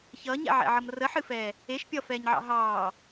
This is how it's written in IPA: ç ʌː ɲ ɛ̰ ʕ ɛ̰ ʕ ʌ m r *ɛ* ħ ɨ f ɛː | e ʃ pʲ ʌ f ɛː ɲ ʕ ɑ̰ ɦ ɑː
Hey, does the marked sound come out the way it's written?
no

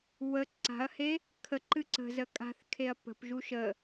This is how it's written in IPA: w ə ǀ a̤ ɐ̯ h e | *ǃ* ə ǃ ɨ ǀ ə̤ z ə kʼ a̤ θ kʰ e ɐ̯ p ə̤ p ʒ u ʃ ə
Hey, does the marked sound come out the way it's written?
no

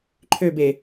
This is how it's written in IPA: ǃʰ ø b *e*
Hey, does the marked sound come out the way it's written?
yes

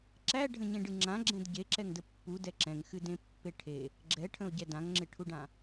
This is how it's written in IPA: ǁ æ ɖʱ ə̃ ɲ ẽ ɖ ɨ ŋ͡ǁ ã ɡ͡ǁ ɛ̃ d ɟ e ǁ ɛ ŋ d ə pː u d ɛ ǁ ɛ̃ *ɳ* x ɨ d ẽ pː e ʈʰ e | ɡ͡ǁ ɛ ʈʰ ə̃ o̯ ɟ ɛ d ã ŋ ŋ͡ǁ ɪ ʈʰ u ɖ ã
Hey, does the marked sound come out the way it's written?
no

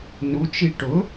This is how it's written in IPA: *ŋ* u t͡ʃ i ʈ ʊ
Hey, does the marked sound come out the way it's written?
no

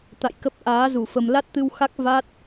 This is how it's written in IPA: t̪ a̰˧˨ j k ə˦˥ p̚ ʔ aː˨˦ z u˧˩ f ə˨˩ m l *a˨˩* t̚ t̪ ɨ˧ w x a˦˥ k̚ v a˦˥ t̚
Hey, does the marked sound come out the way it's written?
no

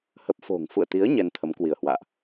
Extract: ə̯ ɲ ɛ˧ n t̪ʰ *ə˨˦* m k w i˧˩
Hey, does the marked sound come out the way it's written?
yes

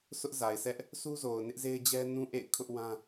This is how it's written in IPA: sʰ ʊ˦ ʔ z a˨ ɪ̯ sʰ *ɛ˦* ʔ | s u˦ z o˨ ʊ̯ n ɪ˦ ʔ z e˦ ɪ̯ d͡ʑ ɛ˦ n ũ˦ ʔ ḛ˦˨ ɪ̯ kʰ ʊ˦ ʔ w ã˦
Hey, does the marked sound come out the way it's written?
yes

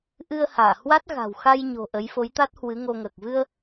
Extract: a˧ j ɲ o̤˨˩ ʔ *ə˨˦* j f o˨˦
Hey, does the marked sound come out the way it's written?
yes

